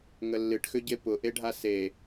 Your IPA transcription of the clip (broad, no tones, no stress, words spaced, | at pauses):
ŋəlːɨʈxʏɟe pʊʔeɖʱa se